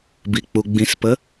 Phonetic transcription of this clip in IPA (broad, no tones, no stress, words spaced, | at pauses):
bik͡puɡ͡bĩspə